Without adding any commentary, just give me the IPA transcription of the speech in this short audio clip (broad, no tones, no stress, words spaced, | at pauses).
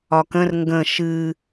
ɒkə̃r ŋɡə̃ ʃɨ